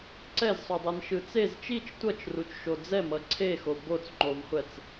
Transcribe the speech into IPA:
ǀ ɛ z sˤ o dˤ ɛ n ʃ ɯ t͡s e z t͡ʃ i t͡ʃ tʷ ʌ t͡ʃ r u t͡ʃ ʃ o d͡z ɛ m ʌ ǀʰ e x o b o t͡s ŋ͡ǃ o v χʷ ɛ t͡s

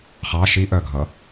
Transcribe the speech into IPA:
χ ɑ ʃ i ʔ œ ɡʱ ʌ

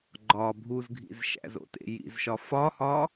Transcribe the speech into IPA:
ɡ͡ǃ ɒ bʱ u z ɡʱ ḭ z ʃ æ̰ z o̰ t ḛ j ḭ z ʃ ɒ f ɒ h ɒ

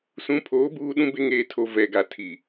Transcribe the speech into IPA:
s ũ˨˦ pʰ oː˨˦ b uː˦ ɗ ũ˦ b e˦ ŋ eː˨ tʰ o˨ v ɛ˨ ɡ a˨ tʰ i˨

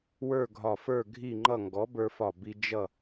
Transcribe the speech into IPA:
w ə˞˥˨ ɡʱ ɒ˧˩ f ə˞˥˨ ɡʱ i˥˨ ŋ͡ǃ ʌ˥˨ ŋ ɡ ɔ˨˥ b ə˞˧ f ɒ˧˩ b i˧ d͡ʒ ʌ˥˨

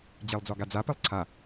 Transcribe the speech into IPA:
d͡ʑ e lˠ d͡z ɒ ɡ a d͡z a p e lˠ ǀʰ a

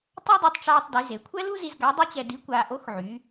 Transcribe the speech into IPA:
tˤ a˥ dˤ u˧ tˤ ʈ͡ʂ aː˧ tˤ d y˩˧ z e˩˧ kʷʰ ɛ˥ l u˥ z i˧ z ɡ a˧˥ dˤ y˥ t͡ɕ ɛ˧ d i˧˥ kʷ aː˧ ʔ o˧˥ x ʕ y˩˧

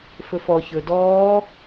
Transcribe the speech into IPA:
f ɵ f ɔ ç ɵ d ɔː

